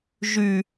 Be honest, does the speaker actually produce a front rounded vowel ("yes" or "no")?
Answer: yes